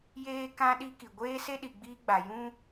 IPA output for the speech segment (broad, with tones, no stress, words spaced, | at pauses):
jeː˦kã˦ ɗi˦ki˨ ɡʷeː˦se˦ ɗi˨ɡ͡biː˦ɡ͡ba˨ jũ˦